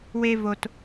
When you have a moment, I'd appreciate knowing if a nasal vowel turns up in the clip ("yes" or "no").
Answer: no